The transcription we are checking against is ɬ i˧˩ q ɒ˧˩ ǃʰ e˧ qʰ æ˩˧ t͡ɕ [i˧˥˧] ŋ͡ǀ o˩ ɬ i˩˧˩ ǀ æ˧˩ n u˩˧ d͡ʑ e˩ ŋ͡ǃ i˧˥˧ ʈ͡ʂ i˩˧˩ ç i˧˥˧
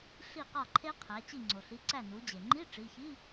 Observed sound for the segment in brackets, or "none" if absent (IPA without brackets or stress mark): i˧˩